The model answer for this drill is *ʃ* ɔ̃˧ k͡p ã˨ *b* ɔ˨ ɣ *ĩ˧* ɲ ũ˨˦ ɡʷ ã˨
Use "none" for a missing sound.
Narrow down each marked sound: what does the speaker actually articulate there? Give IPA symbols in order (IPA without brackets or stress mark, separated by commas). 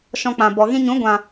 ʃ, b, ĩ˦